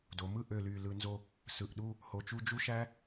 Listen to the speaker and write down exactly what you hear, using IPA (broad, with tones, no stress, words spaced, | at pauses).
do˩˧mɯ˥˧ʔø˧˩ ly˧˩lɯ˧nzo˥˧ | sɯ˧˩ʔɗu˥˧ | ho˧˩t͡ʃu˥˧ d͡ʒu˥˧ʃæ˥